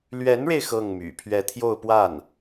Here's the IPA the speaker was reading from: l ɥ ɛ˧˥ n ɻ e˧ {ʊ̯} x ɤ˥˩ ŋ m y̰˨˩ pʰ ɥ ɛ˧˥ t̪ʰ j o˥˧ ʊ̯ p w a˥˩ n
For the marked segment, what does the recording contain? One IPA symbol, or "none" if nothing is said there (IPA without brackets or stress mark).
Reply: ɪ̯